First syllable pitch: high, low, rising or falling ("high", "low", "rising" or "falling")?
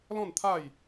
falling